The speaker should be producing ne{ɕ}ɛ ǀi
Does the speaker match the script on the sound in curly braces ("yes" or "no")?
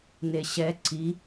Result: yes